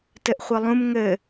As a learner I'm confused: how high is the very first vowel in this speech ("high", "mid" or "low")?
mid